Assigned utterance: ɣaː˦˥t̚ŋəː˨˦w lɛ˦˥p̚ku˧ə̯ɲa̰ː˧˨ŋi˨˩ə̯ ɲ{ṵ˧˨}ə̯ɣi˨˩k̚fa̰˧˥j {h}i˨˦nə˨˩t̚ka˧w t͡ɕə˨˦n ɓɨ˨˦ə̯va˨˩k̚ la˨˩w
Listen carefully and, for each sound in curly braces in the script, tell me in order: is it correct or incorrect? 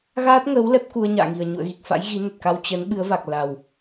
correct, incorrect

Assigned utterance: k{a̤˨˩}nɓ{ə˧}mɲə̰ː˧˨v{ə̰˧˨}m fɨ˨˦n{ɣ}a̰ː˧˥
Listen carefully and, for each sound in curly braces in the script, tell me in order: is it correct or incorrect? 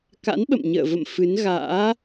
incorrect, incorrect, correct, correct

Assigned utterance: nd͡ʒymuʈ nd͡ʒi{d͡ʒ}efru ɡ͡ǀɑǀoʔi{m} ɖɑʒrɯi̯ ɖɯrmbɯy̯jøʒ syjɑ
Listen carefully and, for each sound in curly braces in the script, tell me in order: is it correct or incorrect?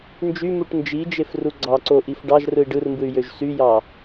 correct, incorrect

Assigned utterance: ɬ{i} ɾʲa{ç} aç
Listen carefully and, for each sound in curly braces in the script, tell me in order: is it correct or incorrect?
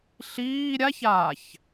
incorrect, correct

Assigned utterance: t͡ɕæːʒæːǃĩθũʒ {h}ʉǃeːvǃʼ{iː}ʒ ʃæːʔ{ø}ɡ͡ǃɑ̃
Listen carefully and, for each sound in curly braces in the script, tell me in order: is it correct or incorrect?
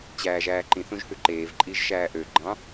correct, correct, correct

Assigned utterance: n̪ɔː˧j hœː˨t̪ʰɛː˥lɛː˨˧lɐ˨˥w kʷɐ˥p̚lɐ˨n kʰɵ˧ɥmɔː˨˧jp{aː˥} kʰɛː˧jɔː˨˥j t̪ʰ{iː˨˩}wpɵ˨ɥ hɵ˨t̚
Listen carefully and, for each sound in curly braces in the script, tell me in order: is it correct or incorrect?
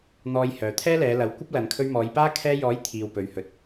correct, incorrect

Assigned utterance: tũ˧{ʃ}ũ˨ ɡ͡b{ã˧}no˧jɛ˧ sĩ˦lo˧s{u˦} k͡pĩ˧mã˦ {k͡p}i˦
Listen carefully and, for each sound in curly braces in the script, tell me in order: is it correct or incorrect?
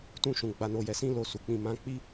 correct, incorrect, incorrect, correct

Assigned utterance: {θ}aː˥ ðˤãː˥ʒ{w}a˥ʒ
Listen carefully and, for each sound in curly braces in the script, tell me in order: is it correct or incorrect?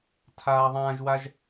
incorrect, correct

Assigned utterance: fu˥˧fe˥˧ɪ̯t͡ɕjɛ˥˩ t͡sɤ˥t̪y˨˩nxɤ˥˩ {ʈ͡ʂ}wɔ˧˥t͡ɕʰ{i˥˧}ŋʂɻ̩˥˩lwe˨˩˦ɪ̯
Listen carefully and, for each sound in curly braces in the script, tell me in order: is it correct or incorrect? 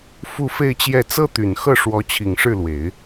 incorrect, incorrect

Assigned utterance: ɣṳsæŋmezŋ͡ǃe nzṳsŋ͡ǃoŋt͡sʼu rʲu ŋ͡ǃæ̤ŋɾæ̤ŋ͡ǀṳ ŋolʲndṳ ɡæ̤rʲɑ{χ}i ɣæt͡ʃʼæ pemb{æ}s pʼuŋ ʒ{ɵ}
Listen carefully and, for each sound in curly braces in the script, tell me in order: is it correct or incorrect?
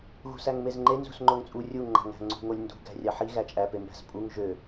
incorrect, incorrect, incorrect

